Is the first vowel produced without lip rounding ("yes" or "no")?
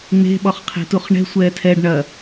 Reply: yes